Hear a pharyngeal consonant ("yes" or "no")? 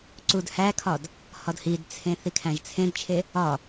no